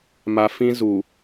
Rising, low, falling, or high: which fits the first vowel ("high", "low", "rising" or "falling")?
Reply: low